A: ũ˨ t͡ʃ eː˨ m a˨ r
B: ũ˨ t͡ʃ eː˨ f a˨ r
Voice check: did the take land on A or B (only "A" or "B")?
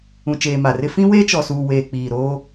A